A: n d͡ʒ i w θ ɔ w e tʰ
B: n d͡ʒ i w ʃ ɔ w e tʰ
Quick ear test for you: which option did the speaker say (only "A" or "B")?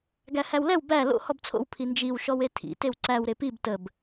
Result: B